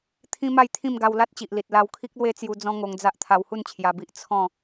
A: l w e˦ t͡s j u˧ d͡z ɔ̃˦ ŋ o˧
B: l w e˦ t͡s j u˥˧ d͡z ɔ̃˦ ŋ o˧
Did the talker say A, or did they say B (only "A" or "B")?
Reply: A